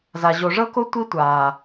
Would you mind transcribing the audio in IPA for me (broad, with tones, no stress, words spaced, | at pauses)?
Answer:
za˨ ʑo˨ʐɤ˦ko˦ tʷi˦tʷaː˨